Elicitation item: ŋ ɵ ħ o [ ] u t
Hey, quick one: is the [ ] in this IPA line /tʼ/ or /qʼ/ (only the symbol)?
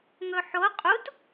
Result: qʼ